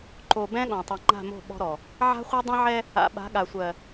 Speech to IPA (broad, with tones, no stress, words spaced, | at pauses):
ǃo˨ bɛ̃˦ɠɔ̃˨ tˤɛ˨ŋ͡ǃa̤˦˨mo̤˦˨ ɓɔ̤˦ɾɔ˨ | ʕa̤˦χʷɜ˦dˤɛ̃˦ʕɛ˦ | a̰˨ɓa̤˨˦ɠa˨sʷɜ˨